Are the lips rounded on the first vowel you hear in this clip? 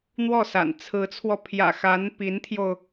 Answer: yes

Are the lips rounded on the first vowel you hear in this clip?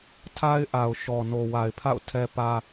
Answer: no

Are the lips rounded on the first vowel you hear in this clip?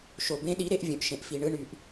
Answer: yes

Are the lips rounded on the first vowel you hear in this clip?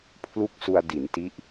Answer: yes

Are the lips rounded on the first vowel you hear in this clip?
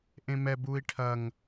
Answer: no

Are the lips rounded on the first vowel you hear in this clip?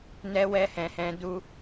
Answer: no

